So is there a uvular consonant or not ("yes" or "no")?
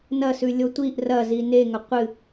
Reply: yes